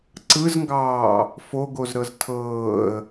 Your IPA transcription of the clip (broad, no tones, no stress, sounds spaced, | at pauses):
ǀ ɯ z ŋ ɡ ɑː | f o ɡ o z ɾ ɤ z tʰ ɤː ə̯